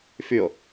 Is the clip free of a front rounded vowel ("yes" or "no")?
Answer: no